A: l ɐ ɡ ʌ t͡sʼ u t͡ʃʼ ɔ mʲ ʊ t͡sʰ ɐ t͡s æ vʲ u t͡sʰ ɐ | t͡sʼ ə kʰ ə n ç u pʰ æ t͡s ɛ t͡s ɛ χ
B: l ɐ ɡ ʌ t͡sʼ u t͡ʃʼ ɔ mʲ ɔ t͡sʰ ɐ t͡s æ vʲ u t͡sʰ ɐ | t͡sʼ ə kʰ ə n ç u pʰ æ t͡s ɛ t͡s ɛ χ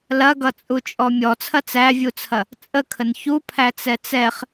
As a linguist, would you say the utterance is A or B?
B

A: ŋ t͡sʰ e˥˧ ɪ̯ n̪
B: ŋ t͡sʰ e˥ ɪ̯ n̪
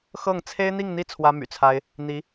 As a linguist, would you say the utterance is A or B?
B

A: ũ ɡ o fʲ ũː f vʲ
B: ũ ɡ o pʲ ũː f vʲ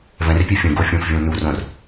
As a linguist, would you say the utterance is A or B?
A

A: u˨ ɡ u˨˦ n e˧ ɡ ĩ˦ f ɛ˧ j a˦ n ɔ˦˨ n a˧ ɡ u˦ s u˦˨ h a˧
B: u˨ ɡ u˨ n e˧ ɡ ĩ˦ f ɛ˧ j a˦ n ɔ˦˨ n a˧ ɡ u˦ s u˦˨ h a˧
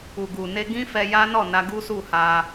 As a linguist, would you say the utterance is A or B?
B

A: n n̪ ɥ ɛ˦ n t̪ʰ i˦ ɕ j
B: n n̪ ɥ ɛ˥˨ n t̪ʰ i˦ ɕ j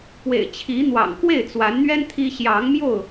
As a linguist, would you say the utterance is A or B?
A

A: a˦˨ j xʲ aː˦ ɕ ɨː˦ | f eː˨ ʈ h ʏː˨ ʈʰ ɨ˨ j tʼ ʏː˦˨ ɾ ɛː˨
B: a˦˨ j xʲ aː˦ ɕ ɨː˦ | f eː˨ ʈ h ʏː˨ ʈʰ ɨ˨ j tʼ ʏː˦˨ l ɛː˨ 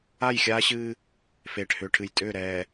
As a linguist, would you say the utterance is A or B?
A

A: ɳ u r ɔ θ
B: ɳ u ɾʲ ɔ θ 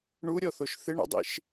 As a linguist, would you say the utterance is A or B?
B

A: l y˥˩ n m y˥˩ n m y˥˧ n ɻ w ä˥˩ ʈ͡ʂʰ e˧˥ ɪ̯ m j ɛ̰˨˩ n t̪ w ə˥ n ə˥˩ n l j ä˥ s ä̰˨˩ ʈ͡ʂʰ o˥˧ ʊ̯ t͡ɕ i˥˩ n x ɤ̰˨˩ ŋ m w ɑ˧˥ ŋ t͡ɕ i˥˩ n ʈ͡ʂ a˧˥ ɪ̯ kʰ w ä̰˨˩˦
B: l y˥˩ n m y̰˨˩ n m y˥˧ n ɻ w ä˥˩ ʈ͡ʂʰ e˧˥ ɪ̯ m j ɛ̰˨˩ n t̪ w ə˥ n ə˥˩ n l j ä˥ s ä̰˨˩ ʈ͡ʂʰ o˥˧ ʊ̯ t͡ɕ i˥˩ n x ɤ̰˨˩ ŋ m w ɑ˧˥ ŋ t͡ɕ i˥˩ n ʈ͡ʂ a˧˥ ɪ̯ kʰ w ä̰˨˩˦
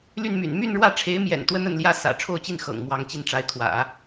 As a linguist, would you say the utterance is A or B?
B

